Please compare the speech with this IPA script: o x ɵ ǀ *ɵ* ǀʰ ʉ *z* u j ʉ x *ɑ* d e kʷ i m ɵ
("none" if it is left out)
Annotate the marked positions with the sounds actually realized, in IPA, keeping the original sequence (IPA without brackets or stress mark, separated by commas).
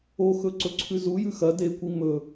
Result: ɵ, z, ɐ